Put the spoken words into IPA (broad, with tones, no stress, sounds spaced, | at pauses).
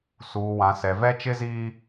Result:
s uː˨ w ã˨ s ɛ˨ v ɛ˦ t͡ʃ ɪ˦ z iː˦